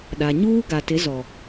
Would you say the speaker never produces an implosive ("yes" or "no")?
no